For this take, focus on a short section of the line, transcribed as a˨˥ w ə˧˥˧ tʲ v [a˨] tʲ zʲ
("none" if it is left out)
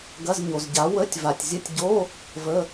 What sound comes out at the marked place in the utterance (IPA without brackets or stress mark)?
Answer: a˨